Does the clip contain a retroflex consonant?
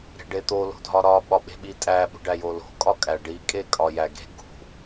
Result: yes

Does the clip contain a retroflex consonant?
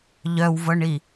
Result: yes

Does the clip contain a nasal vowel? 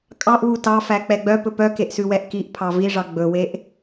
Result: no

